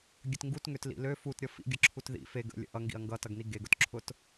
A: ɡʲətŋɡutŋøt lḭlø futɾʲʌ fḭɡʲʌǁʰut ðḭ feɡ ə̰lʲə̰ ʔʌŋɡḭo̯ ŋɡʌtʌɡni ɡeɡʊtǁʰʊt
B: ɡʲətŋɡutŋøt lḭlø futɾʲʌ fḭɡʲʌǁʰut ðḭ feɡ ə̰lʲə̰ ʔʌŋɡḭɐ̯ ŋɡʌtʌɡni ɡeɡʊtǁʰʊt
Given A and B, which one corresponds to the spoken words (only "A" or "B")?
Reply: B